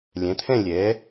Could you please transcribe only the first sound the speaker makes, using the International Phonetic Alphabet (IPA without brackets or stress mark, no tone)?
lʲ